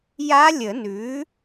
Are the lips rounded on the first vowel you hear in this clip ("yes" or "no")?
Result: no